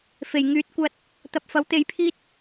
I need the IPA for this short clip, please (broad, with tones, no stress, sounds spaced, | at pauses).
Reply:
f e˨˩ j ŋ yː˨˥ t̚ kʷ ɐ˧ t̚ | t̪ ɐ˨ p̚ f ɐ˨˥ w t̪ e˨˧ j pʰ iː˥ t̚